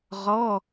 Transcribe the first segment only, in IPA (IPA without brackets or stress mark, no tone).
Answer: ʁ